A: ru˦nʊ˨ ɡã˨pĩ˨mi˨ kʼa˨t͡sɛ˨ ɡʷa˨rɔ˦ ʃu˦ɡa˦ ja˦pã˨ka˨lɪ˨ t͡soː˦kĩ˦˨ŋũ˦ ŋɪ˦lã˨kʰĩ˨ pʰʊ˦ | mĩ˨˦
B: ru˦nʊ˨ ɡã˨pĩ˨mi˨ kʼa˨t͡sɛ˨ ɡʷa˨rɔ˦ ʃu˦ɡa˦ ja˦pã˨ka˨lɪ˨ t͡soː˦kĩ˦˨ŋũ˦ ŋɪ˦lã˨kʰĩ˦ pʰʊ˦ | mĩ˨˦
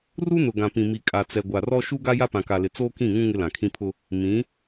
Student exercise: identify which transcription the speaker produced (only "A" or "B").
B